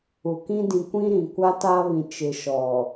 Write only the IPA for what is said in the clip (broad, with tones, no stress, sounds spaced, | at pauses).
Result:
u˨ k ĩ˦ d ĩ˨ kʷ ĩ˦ ɾ ĩ˨ kʷ a˦ t a˦ β ĩ˨ t͡ʃ ɪ˨ ʃ ɔ˨